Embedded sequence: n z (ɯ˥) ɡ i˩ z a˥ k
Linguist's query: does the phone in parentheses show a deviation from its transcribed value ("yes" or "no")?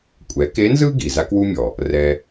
no